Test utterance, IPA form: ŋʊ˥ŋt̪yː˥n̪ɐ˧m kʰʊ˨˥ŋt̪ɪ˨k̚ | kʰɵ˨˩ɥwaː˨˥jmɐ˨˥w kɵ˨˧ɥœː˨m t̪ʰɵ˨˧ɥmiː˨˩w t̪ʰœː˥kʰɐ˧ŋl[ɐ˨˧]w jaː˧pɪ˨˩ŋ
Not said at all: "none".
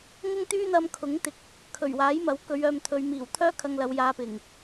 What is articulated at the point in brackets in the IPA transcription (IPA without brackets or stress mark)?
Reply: ɐ˨˧